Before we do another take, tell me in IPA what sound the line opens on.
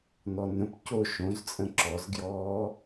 n̪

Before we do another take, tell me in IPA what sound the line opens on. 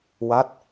w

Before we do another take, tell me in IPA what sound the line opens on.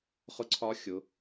χ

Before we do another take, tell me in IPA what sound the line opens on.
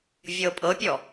vʲ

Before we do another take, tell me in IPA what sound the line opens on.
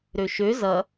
ɾ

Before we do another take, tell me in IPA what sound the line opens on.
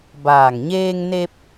b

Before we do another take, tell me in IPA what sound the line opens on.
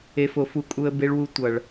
e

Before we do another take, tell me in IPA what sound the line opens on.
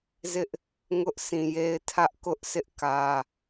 z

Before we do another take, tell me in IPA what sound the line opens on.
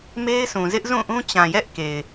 m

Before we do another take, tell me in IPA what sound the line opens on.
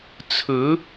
t͡sʰ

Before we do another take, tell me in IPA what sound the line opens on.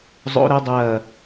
zˤ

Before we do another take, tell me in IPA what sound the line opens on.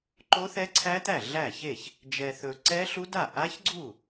ǃ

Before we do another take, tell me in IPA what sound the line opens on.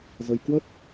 z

